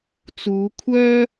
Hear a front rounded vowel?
yes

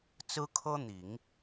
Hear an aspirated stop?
yes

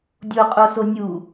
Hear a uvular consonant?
yes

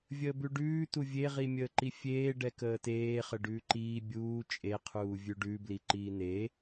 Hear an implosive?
no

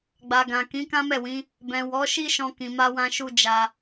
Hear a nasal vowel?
yes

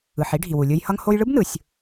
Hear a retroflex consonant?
yes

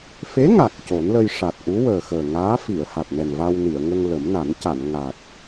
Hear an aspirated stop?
no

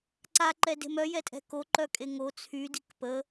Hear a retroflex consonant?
no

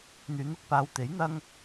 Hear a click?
no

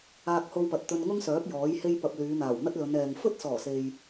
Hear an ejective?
no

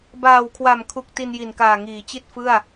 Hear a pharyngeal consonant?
no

